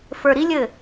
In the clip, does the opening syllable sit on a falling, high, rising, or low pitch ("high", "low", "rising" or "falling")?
low